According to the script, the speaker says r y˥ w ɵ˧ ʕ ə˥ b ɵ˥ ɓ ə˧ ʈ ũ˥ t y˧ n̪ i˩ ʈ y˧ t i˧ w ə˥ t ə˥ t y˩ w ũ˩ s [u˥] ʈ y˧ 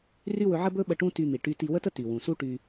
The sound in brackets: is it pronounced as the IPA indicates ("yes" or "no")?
yes